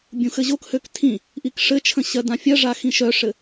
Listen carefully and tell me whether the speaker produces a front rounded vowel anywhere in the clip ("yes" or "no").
yes